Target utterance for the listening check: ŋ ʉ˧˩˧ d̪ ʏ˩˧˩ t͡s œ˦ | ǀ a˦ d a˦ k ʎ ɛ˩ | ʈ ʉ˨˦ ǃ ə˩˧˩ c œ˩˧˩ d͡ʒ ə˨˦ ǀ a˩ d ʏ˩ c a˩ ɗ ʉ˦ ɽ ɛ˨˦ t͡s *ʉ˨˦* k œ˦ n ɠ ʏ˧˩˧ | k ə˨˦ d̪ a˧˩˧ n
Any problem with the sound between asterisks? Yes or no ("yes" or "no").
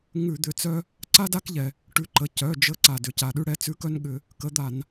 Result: no